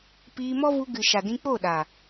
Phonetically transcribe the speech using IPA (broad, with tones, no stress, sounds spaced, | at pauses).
p iː˧ m ɔ˦ v u˧ ɡ ɨ˨ ʃ a˨ d ĩ˧ k͡p o˦˨ ɗ a˨